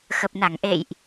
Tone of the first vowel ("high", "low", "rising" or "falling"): low